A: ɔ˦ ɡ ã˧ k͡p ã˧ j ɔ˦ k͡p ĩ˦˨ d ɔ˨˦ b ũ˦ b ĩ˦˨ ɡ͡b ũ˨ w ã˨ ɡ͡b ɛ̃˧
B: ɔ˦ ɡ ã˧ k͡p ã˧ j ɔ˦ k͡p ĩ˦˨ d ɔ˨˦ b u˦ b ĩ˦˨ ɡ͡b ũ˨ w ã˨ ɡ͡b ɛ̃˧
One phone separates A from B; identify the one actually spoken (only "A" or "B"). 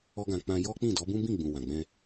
A